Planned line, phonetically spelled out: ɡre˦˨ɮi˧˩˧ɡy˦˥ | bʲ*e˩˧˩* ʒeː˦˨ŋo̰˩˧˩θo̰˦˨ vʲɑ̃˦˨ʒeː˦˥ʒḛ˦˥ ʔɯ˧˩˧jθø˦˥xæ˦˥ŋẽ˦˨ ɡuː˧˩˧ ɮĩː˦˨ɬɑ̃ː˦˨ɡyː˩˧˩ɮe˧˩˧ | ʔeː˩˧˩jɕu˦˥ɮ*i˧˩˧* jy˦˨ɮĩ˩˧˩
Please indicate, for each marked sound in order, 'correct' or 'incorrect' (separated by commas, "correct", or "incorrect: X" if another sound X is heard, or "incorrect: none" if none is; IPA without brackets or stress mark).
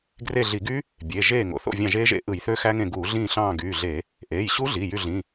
correct, incorrect: i˩˧˩